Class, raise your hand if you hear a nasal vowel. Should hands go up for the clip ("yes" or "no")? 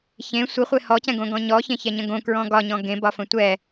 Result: yes